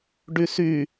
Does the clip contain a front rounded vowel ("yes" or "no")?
yes